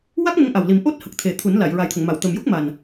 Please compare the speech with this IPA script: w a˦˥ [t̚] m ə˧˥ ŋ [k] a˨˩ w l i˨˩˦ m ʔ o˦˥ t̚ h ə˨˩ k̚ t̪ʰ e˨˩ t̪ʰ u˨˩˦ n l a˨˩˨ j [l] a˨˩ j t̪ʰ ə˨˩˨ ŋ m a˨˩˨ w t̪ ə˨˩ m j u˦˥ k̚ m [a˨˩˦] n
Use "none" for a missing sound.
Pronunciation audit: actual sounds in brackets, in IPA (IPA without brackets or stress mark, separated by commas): k̚, ʔ, ɹ, a˨˩